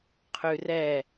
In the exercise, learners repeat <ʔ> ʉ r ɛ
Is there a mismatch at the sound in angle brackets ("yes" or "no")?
yes